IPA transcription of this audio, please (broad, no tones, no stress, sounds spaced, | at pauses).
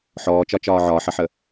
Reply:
ħ ɔː t͡ʃ ɒ t͡ʃ ɒː ʕ ɒː ħ ʌ ħ ə